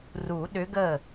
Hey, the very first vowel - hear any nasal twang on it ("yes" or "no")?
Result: no